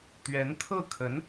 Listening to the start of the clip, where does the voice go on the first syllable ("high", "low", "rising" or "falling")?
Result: rising